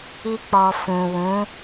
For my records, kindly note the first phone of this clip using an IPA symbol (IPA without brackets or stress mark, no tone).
i